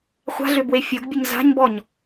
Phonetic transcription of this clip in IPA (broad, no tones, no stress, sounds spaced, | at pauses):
χʷ a̤ ɮ ʏ b w e fʲ o ɡ bʲ ʊ ɲ z a̤ ɲ b ɔ ɲ